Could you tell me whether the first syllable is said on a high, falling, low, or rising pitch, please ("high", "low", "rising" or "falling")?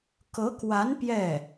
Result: rising